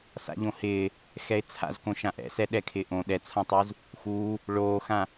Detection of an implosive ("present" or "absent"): present